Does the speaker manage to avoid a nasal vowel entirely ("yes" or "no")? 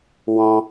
no